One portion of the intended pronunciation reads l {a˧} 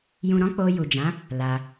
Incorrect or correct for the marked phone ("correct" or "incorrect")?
correct